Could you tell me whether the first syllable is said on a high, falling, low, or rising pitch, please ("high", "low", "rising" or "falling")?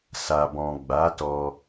low